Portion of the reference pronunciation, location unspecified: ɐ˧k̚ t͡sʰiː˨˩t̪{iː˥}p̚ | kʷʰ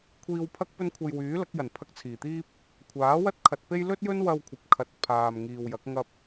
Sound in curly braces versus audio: correct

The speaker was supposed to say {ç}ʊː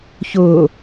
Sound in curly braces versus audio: correct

